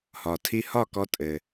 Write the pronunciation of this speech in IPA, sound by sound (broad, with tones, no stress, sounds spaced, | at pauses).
h ɒ˩ tʰ i˧ h ɒ˥˩ k ɔ˧ tʼ ɘ˩